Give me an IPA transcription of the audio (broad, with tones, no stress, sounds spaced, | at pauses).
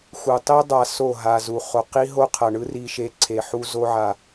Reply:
x u˨ tˤ i˦ dˤ a˧ s o˦˨ ɦ a˧ z u˨ χ o˨ q i˦ ɦ o˦ qʰ ʌ˨ ɳ ɯ˦ r i˧ ʃ e˧ ǀʰ e˨ ħ u˦ z o˦ ʕ a˧